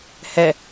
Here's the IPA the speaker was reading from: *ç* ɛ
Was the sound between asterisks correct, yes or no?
no